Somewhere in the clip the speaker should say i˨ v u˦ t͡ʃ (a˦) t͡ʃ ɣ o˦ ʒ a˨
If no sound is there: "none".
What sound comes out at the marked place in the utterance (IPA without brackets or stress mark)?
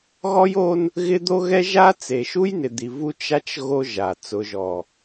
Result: a˦